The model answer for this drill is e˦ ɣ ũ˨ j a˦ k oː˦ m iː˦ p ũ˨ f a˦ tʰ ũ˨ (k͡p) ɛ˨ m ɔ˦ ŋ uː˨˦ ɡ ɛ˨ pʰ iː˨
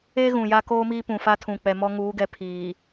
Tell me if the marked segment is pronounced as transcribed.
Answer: yes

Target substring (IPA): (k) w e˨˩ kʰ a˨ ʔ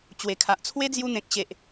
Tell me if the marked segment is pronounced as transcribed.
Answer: no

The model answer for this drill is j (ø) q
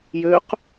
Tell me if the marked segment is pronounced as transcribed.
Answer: yes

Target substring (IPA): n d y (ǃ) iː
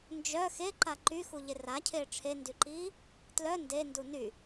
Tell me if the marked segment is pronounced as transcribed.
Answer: yes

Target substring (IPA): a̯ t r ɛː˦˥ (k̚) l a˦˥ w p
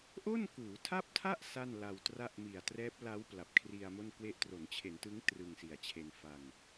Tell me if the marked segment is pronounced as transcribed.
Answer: no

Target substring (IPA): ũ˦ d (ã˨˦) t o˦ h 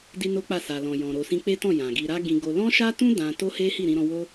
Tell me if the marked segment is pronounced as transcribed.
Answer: no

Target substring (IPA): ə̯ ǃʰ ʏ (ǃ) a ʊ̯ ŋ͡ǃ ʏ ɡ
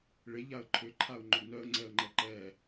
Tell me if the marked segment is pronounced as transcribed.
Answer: no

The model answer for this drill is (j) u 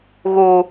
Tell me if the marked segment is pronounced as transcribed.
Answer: no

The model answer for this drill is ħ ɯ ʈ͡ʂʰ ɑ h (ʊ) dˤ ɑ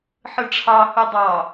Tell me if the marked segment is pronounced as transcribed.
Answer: no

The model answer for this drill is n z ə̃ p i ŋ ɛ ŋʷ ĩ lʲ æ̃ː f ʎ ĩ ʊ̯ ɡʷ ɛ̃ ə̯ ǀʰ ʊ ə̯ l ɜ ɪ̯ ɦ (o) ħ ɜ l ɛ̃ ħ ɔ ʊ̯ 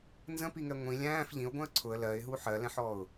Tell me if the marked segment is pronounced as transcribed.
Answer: no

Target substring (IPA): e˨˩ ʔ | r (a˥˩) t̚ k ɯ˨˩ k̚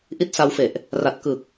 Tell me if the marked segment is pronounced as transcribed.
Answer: no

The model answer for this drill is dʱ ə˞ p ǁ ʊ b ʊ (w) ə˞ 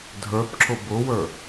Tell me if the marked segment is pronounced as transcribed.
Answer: yes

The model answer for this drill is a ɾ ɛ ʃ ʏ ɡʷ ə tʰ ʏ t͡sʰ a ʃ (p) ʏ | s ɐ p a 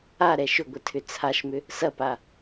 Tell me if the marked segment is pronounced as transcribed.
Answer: no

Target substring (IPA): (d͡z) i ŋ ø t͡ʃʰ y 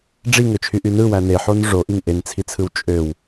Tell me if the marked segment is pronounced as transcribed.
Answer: no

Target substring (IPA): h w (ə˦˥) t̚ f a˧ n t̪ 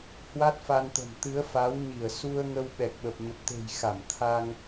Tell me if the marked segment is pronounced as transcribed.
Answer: no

